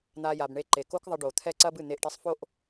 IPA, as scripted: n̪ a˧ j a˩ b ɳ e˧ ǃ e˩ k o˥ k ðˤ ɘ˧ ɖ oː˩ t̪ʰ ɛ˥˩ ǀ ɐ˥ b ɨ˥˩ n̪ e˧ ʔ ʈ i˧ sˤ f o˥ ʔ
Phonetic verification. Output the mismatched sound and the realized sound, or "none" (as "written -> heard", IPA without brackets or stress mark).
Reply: none